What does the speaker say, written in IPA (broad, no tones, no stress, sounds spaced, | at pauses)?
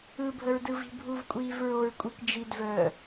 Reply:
ɯ bʱ ə ɹ d ɯ v i̤ bʱ u v kʷʼ iː v ɹ o ɹ kʷʼ i k d͡ʒ i d v œː